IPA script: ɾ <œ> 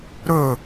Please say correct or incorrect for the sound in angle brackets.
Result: incorrect